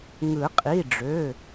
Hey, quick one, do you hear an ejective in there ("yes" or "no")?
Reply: yes